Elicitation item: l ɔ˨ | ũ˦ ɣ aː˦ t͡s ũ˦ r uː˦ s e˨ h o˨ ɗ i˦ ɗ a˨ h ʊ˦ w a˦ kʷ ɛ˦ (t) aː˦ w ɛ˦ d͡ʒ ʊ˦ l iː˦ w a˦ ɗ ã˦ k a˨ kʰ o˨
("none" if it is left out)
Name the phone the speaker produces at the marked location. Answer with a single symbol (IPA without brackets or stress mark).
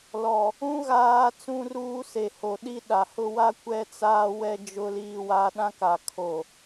t͡s